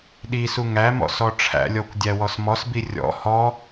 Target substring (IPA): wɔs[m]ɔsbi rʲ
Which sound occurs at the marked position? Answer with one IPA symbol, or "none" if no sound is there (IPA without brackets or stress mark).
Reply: m